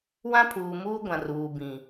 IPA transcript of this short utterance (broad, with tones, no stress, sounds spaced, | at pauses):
w ã˦ pʰ uː˨ m uː˦ ɡʷ ã˨ r uː˨ b ĩ˨